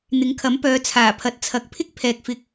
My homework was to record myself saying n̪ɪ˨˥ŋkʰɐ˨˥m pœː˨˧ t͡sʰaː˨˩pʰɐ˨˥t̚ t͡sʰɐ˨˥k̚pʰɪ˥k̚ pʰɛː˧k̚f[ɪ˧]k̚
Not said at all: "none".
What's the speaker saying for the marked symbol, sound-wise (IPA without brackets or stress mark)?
ɪ˧